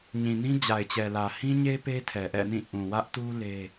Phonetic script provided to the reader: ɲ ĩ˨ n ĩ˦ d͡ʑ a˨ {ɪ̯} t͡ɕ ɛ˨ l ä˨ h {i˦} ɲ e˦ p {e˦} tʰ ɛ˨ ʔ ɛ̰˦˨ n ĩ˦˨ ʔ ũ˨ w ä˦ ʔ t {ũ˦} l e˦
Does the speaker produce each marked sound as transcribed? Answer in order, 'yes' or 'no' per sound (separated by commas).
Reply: yes, no, yes, no